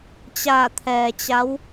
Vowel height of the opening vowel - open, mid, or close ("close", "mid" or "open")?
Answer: open